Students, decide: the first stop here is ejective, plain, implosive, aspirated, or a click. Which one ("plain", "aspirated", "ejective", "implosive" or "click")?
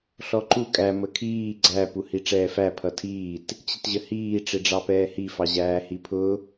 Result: click